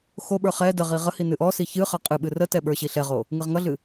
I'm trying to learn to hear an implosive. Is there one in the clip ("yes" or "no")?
yes